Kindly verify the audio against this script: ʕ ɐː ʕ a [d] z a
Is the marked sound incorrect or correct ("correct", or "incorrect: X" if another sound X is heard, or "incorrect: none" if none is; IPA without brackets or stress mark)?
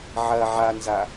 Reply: incorrect: n